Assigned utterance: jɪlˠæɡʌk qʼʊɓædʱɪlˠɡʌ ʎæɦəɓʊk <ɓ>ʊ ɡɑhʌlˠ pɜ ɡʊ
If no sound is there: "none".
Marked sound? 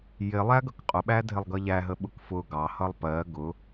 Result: f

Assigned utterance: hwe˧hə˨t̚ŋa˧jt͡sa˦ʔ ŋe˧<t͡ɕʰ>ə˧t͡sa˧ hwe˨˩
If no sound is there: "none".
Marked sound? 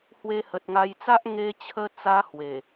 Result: t͡ɕʰ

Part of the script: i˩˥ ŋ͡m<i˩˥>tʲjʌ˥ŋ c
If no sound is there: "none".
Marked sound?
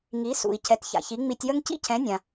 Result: i˧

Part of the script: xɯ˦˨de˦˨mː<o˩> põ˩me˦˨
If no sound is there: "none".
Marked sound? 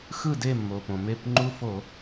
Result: o˩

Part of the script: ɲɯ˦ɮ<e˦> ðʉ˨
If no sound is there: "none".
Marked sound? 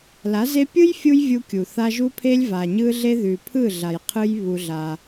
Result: e˦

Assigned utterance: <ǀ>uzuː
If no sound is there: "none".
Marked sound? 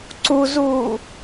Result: ǀ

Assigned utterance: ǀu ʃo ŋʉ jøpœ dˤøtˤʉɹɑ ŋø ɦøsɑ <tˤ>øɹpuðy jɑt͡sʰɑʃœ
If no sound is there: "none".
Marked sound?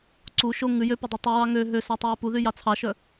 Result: tˤ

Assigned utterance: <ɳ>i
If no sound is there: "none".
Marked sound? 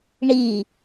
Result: ɳ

